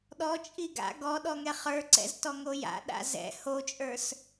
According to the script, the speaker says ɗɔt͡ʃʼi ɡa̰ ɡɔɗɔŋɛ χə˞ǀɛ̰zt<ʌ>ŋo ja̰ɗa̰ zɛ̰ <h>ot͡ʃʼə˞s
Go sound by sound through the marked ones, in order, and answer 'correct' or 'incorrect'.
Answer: incorrect: ɔ, correct

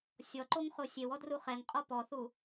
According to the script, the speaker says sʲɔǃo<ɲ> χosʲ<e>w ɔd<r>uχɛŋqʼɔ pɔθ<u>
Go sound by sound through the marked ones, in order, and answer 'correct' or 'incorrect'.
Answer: incorrect: ŋ, correct, correct, correct

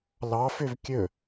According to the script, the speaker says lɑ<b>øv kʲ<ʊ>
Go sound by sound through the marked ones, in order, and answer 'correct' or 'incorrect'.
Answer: incorrect: f, incorrect: ɵ

